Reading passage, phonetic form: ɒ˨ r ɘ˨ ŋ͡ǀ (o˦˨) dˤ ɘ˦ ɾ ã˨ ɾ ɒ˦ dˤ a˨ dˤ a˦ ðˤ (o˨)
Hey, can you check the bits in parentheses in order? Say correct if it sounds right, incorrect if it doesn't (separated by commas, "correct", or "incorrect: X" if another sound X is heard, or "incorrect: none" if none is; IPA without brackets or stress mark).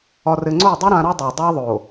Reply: correct, correct